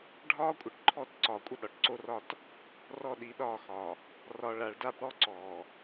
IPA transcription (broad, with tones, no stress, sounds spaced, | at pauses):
ɖʱ ɒː˦ kʷʼ ə˨ ʈ ǃʰ ɔ˦˨ t ǀ ɒː˨ kʷʼ ə˦ ɗ ɒ˨ ʈ ǀ o˦ r ɒ˦˨ t | r ɔ˦˨ ɗ i˨˦ ɗ ɒː˦˨ x ɒ˨ | r ɒ˨ ɭ a˨ ɭ d a˦ b ɽ ɔ˦ ǀ ɔː˨